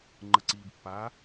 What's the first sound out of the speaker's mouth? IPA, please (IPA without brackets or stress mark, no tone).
ŋ͡ǃ